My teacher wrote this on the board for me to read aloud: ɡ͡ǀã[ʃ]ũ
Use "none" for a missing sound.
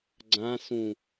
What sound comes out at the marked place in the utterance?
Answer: s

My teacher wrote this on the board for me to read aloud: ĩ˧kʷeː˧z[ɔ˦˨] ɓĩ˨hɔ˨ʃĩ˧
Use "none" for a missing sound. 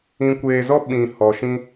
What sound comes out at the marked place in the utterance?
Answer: ɔ˦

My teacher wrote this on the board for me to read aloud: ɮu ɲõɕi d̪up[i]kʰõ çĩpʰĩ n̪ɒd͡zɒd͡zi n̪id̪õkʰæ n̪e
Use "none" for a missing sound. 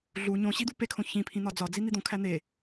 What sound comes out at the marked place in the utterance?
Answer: e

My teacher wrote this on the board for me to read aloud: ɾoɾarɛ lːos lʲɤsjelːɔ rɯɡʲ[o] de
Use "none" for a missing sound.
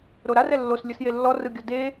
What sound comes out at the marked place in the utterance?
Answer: ɔ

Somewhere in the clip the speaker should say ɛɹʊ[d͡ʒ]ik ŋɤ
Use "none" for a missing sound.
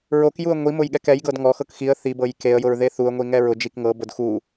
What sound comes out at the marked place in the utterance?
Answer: d͡ʒ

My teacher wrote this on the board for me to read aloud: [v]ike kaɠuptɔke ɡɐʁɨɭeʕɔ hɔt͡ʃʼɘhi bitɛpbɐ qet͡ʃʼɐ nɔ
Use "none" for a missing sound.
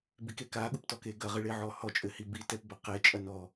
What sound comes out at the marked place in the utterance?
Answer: b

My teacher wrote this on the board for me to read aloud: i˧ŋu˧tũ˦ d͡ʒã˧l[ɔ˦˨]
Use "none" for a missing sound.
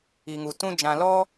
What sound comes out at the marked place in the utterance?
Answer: ɔ˦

